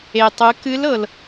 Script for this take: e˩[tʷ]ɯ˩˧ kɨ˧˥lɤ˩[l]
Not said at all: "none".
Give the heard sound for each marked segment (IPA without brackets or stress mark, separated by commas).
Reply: tˤ, l